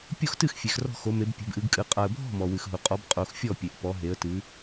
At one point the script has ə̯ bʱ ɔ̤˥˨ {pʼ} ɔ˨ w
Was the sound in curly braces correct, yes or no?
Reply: no